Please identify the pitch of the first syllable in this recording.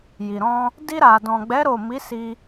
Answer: low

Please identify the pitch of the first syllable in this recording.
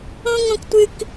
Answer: high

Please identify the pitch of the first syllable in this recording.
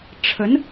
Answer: rising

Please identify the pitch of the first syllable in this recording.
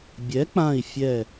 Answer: rising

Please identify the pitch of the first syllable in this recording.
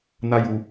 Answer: high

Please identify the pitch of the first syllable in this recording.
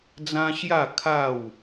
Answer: high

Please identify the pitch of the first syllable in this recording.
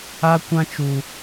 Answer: high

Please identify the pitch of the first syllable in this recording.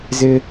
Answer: high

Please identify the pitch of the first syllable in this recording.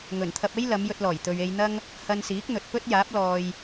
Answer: low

